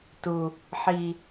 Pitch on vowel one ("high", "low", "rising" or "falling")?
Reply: low